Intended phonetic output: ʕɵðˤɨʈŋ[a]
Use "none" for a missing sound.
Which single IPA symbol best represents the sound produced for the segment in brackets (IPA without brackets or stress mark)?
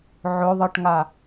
a